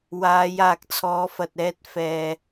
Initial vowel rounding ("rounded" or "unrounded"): unrounded